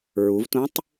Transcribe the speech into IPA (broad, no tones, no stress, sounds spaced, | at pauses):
ɹ u v t ũ tˤ